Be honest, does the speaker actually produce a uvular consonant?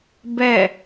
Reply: no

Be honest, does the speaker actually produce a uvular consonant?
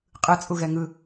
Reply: yes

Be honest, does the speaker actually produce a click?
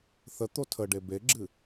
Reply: yes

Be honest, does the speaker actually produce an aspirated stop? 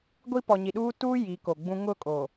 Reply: no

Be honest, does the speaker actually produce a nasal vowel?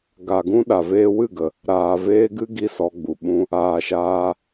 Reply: yes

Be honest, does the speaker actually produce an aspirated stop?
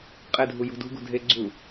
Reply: no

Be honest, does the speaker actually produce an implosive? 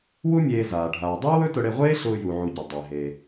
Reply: no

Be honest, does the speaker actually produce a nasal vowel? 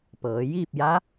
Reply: no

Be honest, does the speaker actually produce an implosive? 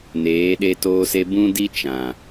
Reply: yes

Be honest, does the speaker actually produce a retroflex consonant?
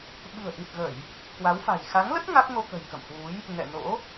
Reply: no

